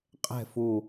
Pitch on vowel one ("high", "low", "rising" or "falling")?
falling